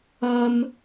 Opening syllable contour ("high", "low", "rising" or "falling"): high